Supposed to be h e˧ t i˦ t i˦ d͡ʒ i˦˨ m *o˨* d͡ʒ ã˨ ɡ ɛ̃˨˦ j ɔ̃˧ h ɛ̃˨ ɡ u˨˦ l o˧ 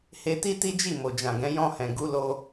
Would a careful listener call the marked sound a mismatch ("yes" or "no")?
no